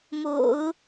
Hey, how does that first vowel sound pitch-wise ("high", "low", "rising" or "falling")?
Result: low